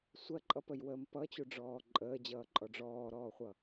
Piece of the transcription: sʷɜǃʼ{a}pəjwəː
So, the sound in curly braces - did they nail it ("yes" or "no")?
no